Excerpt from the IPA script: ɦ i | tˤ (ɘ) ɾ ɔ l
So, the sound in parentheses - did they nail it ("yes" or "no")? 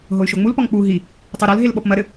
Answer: no